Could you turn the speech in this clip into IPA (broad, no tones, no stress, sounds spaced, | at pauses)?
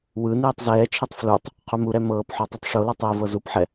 w ɯ n iː tˤ z ɛː t͡ʃʰ i tˤ f l u tˤ | qʰ u m u ɾ ɛ m ɤː p ħ o tˤ o tˤ ʂ o l ɯ tˤ iː v ɤ z u p ħ ɛ